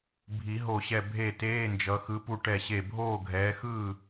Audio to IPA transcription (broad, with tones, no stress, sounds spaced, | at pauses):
bʱ i˨˩˦ ɦ o˧˩ ɕ ɛ˧˩ bʱ e˥˩ t eː˧˥˧ n d͡ʒ ʌ˨˦ x ɯ˨˦ p u˧˩ ʈ ɛ˧˩ ɕ e˧˩ bʱ oː˥˩ ɡʱ ɛː˨˦ x ɯː˥˩